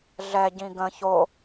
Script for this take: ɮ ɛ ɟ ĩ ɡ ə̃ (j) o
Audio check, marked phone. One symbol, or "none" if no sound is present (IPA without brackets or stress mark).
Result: ç